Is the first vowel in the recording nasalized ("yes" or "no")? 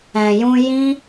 yes